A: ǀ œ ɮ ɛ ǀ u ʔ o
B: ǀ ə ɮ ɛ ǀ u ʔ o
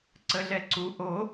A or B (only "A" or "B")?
B